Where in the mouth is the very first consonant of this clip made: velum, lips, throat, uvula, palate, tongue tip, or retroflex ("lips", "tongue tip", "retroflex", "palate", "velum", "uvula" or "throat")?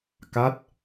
velum